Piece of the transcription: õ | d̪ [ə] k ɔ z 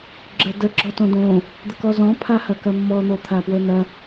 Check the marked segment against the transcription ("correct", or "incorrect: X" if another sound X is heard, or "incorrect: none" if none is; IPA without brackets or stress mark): correct